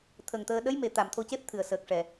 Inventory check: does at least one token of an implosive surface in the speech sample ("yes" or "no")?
yes